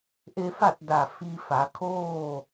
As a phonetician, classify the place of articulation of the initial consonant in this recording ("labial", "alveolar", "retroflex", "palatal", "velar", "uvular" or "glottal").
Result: glottal